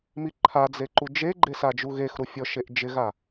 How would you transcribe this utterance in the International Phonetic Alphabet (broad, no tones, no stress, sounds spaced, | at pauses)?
m i ǃʰ a d͡z e ǃ u d͡ʒ e ɡ͡ǃ e s a d͡ʒ u ɣ e x ɾ u fʲ ɔ ʃ e ʔ d͡ʒ ɪ ɣ a